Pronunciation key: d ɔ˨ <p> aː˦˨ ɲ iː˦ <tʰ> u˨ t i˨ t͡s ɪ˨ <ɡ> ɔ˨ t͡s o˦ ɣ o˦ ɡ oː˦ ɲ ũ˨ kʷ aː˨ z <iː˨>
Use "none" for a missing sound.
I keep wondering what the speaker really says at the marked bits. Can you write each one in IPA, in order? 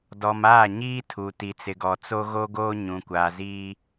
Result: m, tʰ, ɡ, iː˦

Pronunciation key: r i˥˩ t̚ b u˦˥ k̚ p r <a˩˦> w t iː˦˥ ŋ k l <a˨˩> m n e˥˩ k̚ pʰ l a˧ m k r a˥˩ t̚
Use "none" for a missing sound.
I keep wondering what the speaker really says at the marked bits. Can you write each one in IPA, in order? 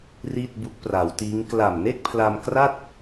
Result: a˩˦, a˨˩

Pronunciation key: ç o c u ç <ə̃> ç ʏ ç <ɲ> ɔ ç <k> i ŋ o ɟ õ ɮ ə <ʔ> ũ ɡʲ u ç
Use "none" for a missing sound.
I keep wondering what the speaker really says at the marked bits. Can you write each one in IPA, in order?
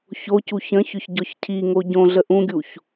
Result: ə̃, ɟ, cʰ, ʔ

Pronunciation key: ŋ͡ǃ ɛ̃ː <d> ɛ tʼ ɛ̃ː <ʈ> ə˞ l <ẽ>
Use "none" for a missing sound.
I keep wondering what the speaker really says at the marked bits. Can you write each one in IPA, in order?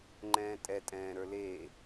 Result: tʼ, ɾ, e

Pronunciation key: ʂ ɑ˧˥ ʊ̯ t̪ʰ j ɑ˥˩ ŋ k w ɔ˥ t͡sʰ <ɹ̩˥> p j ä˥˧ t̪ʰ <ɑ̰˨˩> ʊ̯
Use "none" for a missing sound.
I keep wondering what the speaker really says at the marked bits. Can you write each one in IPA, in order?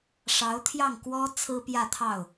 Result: ɹ̩˥, ɑ˥˩

